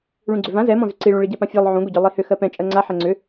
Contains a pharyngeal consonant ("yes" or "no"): yes